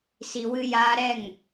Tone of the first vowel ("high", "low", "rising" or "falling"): low